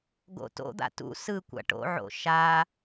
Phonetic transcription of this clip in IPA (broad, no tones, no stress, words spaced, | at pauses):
ɡo̰to̰d̪a̰ tṵ sɯ kʷa̰ʈo̰ʕo̰ ʃa